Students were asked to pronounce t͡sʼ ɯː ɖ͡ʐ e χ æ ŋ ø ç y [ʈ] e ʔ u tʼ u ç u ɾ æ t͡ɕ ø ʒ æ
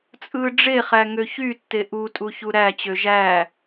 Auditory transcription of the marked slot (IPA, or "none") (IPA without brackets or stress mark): tː